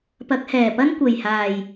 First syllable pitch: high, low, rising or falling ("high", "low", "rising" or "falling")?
rising